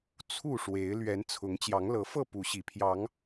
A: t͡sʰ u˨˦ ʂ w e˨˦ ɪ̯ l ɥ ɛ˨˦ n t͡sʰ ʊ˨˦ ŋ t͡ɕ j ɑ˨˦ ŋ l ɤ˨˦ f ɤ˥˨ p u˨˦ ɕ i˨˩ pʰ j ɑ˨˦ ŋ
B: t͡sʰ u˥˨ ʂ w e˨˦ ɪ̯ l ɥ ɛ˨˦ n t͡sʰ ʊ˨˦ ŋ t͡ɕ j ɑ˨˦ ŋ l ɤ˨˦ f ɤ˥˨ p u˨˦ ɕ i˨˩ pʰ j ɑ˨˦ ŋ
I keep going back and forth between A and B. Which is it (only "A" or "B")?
B